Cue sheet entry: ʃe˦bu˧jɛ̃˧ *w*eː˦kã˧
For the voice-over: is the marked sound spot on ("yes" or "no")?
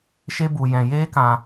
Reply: no